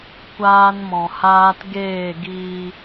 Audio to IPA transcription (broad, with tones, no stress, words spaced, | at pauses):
kʷaː˦nmɔ̃˧haː˦t ɡeː˦˨ɡiː˧